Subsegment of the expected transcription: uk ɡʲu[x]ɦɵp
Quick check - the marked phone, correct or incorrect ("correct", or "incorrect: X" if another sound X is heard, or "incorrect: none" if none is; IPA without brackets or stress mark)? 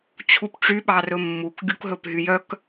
incorrect: k